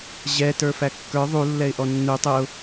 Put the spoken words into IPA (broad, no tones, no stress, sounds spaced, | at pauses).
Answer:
ʑ ɛ t ə˞ f æ kː ə˞ ðˤ u lː ɛ ɪ̯ ʔ ɔ nː u tˤ ə ʊ̯